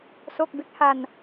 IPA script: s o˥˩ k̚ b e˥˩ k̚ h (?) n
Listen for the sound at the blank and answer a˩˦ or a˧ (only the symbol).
a˧